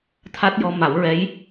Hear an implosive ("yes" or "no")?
no